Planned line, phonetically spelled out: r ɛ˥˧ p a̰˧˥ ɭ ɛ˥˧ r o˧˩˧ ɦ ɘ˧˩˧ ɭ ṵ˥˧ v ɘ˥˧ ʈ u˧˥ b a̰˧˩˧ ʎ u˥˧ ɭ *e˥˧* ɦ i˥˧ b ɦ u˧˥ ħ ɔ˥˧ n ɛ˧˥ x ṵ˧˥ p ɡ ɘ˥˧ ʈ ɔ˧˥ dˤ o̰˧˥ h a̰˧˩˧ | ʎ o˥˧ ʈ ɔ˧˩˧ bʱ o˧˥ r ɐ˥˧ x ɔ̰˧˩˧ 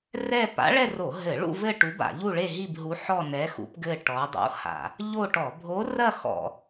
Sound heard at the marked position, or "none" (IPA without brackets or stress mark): e˥˧